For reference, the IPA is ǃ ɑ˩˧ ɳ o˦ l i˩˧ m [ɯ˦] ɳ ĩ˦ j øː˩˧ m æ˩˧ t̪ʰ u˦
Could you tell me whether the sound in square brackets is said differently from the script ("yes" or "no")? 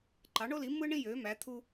no